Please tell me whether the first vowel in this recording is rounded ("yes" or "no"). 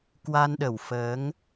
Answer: no